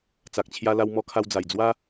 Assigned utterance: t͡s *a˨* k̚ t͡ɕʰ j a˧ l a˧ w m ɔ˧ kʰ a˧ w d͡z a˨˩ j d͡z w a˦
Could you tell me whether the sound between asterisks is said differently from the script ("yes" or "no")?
no